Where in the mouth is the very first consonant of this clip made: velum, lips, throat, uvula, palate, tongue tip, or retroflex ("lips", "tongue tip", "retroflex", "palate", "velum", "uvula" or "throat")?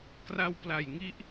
velum